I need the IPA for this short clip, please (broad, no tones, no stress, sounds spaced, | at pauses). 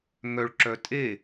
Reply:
ŋ œ ɭ ǁ œ tʼ e